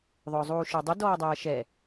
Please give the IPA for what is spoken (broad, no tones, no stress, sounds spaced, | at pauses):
ðˤ ʊː zˤ uː ʃ ə˞ dˤ ʊ d ɔː dˤ æː ʃ ɛ